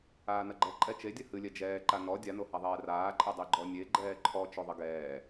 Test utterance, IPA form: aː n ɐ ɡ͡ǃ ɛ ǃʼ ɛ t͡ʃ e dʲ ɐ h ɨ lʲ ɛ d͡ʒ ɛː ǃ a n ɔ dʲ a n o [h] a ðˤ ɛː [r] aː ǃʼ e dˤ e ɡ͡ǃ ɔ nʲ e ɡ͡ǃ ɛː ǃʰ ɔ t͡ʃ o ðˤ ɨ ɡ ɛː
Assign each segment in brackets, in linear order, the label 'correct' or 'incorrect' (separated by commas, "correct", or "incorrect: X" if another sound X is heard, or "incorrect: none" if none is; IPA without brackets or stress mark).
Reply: correct, correct